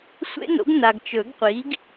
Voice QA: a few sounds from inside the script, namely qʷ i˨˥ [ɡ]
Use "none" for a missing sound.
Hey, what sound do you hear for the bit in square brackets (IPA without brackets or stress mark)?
ɡ